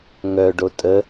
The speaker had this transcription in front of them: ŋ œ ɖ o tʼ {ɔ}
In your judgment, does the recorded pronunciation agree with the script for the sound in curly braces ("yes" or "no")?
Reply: no